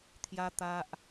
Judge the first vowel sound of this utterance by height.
low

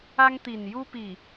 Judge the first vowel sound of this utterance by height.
low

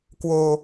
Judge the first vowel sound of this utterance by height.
mid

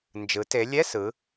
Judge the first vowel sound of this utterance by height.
high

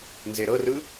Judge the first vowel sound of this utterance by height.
mid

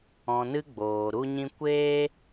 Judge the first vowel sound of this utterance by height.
mid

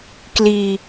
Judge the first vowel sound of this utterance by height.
high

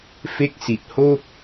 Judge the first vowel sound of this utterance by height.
mid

